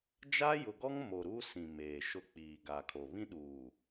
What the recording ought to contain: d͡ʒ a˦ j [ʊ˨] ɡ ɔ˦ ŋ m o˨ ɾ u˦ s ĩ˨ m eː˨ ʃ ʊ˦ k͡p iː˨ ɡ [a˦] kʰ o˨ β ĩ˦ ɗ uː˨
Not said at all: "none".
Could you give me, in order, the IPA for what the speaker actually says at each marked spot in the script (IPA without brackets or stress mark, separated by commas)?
ʊ˨, a˨